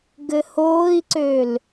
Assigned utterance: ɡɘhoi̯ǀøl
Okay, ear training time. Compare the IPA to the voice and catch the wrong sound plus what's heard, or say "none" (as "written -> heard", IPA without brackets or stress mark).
o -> oː